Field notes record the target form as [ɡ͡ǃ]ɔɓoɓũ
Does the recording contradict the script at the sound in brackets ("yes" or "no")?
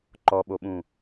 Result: yes